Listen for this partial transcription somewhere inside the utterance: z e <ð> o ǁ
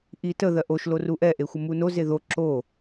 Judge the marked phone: correct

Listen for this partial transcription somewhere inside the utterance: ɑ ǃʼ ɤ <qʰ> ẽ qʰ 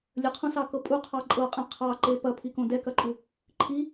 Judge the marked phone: incorrect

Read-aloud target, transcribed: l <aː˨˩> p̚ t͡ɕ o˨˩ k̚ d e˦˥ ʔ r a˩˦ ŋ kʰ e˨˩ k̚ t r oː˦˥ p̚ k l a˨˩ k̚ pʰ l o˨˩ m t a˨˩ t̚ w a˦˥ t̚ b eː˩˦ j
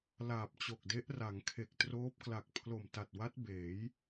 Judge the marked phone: correct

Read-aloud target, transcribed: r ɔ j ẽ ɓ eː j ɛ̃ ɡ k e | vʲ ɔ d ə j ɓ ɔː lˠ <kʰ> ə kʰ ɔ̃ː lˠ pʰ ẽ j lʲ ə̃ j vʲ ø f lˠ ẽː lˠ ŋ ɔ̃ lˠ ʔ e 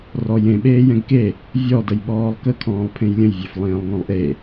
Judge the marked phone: incorrect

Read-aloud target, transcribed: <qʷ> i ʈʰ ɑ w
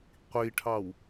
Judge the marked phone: correct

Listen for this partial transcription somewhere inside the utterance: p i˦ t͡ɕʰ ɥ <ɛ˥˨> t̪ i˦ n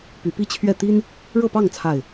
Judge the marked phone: correct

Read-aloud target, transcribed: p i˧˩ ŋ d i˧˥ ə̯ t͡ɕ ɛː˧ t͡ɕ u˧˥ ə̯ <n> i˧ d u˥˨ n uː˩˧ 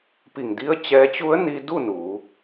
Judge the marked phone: correct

